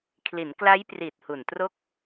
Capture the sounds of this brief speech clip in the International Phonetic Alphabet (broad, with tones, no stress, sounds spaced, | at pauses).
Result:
kʰ l i˩˦ n k l a˦˥ j p r i˨˩ t̚ h u˨˩ n t r o˥˩ k̚